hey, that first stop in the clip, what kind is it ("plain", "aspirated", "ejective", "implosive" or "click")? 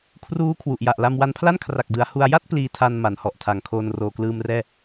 aspirated